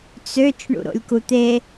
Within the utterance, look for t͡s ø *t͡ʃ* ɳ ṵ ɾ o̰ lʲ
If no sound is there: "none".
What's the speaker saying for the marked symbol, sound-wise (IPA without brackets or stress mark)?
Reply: t͡ʃ